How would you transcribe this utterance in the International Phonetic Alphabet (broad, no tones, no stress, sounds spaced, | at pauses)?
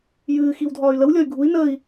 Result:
j ɨː x i w dʱ ɒː y̯ l ə w lʲ ɒ y̯ ɡʱ u i̯ n əː i̯